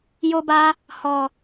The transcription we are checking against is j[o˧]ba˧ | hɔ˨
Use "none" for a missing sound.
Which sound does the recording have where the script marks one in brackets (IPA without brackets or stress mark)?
o˧